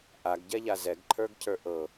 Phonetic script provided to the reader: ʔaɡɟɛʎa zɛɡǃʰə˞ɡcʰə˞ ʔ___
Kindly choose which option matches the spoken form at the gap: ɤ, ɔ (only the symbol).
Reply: ɤ